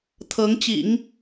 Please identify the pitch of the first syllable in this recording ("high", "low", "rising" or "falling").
rising